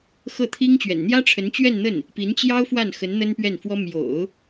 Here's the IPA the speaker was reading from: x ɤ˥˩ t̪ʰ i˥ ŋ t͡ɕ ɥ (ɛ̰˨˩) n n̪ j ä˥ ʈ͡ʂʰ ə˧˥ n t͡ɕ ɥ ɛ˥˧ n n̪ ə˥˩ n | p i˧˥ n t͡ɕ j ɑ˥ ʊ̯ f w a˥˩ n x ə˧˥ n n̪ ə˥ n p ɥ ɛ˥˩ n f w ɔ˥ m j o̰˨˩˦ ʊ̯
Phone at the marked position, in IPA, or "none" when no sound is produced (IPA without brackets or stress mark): ɛ̰˨˩